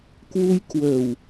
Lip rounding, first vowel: rounded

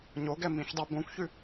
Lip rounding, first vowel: rounded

